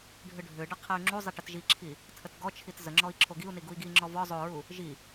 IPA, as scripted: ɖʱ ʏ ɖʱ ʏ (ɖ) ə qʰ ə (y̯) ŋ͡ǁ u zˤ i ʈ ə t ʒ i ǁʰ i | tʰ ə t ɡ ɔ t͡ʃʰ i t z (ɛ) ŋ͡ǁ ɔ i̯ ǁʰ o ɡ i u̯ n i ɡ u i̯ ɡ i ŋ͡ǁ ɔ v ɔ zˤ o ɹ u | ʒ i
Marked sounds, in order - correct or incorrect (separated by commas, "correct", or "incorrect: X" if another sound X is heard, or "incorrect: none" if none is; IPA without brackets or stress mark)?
correct, correct, incorrect: ə